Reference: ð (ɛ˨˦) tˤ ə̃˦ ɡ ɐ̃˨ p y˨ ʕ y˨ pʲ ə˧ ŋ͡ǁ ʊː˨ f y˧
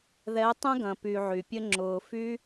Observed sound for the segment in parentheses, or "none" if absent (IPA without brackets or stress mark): ɛ˨˦